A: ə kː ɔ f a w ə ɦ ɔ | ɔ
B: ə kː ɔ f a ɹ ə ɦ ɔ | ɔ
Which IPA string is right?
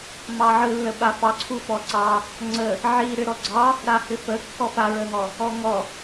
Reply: B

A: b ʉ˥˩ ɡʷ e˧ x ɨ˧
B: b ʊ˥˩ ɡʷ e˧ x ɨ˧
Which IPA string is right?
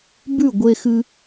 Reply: A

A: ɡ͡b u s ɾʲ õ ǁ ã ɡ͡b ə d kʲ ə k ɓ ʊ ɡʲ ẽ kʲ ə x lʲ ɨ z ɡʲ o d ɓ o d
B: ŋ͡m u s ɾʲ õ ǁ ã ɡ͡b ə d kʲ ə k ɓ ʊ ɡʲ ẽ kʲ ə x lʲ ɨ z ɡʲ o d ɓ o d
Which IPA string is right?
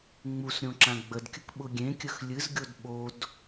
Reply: B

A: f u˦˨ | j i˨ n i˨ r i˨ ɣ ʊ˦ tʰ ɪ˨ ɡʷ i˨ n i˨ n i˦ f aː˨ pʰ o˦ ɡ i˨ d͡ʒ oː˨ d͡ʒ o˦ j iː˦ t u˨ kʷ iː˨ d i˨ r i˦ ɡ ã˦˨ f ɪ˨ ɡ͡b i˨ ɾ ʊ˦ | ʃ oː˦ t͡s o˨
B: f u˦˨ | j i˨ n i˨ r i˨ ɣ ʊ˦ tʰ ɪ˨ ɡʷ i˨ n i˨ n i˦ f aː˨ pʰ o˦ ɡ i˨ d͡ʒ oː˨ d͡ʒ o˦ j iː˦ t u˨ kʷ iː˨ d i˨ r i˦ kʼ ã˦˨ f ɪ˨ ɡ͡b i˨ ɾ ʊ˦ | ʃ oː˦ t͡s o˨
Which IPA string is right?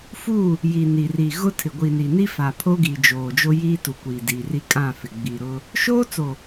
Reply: B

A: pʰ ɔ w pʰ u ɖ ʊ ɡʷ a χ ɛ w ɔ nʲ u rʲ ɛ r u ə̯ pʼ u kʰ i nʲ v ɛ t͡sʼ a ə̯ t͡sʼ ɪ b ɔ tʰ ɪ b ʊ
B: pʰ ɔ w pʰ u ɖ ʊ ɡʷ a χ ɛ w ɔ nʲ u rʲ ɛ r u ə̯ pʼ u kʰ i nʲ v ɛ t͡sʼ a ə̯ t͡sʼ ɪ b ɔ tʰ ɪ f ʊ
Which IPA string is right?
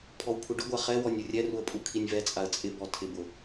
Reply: A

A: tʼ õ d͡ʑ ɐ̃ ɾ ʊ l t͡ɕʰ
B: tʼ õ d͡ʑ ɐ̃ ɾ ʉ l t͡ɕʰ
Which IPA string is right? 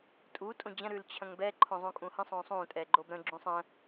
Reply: B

